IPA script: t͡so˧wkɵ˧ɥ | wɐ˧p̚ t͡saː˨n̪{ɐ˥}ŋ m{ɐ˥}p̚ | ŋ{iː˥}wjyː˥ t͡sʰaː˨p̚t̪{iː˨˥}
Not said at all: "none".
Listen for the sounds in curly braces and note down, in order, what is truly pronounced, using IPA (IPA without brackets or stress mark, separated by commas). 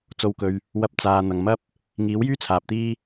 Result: ɐ˨, ɐ˥, iː˨˥, iː˥